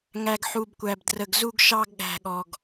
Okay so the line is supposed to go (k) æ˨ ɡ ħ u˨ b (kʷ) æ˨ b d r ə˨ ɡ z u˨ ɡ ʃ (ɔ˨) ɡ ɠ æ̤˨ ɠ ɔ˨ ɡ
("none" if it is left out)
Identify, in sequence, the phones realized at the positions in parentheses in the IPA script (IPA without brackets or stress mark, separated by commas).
ŋ, kʷ, ɑ˨